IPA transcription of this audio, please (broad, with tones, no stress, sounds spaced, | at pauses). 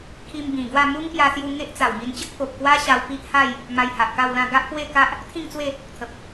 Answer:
kʰ i˧ m b ĩ˨˩ ɡ w a˥˧ m u˦ ŋ p j a˧ s j u˧ ŋ e˦ ʔ t͡s a˨˩ w m i˧ n t͡ɕ ə˦ k̚ p o˨ p̚ k w a˦ ɕ a˧ w p i˦ ʔ h a˥˧ j | m a˧ j h a˨ ʔ k a˥˧ w l ã˥˧ ɡ a˦ ʔ p w e˥˧ k a˦ ʔ | t̪ʰ ĩ˥˧ ŋ t͡s w e˥˧ | t̪ʰ ə˨ p̚